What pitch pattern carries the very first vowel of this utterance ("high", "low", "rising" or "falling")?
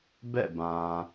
falling